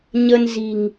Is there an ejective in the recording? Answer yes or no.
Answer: no